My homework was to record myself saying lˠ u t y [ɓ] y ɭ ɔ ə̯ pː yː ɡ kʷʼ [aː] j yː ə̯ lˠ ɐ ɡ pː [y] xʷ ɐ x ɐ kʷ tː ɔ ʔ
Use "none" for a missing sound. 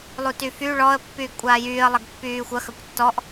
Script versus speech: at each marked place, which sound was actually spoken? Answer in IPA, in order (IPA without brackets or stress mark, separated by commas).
f, aː, yː